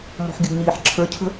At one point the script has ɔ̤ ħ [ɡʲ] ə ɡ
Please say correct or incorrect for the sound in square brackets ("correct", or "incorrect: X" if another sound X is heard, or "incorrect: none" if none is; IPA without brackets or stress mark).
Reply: correct